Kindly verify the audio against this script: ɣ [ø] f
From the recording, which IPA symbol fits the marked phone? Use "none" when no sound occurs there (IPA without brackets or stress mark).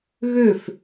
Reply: ø